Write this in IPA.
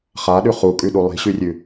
χaɗʉ χukʼʉɗu lˠi̤ɕʉrʲʉ

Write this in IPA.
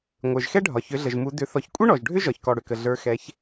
ŋʷə˞˩ʒxɛ˥ɖʱɒ˩ çʏ˩˧ɮə˩ʒmu˩˧ dʏ˩˧ θɔ˩çkʷʼə˥ ɳɔ˩ʒɖʱʏ˥ ʒɒ˩çkɔ˩ɽʏ˩kə˩ ɮə˞˩˧xɛ˩˧ç

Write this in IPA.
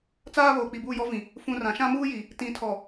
t͡saː˦βoː˨ k͡pi˨buː˦˨jɔ˦vĩ˨ | fũ˨ rã˨ʃã˦muː˦ji˨ | tĩ˨tʰɔ˨

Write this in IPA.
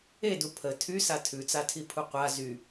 edu pʰə tʰysa tʰʉt͡satʰipʰu qʷa zy

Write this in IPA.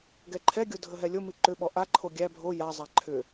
ɡɛǃʰɛɡʲo dʱəɦɛlʲomi ǃʏɓɔ ʔaǃʰo ɡʲæ bʱo jazˤa ǃʰʏ

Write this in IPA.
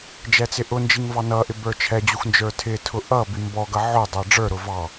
d͡ʒɛt͡sɪʔʊnd͡ʒiŋ vɑnʌʔɪ bə˞t͡ʃʰɛd͡ʑux nd͡ʒə˞tʰɪtʰʊ ʔʌ bimbɔɡʌ ʕʊdˤʌ ɖ͡ʐə˞ɾʊ vɑ

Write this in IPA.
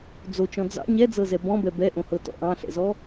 d͡zot͡ʃɔ̃ d͡zɑ̰ ɲɛd͡zɤzɛ bɔ̃bɛ bɛʔõhɤtɔ̰ ʔɑ̃ɬɛ̰zɔ

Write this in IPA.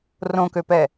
rõkøpɛ

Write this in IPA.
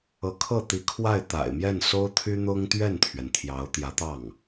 ɤ˧˥kʰɤ˥˩t̪i˧˥ kʰwa˥˩ɪ̯t̪a̰˨˩ɪ̯mjɛ˥˩n so˥ʊ̯t̪ʰy˥n̪ʊ˥ŋ t̪ɥɛ˥˩nt̪ʰɥɛ˩n t̪ʰjɑ˧˥ʊ̯t̪jä˧˥t̪ɑ˥˩ŋ

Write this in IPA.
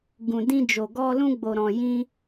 ɡũ˨dĩ˧d͡ʒo˨ ɡɔ˧ lũ˧ɡ͡bo˨ɾɔ̃˨ jĩ˧

